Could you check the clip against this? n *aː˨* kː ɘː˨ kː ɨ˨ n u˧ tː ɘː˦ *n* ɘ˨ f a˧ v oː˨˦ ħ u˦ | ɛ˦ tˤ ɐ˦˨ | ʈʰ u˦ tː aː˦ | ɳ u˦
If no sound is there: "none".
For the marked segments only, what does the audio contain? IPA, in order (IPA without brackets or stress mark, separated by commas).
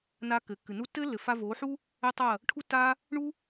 aː˧, lː